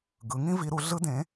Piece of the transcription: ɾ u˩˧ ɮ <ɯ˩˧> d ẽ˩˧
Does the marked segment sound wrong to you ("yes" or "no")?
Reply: yes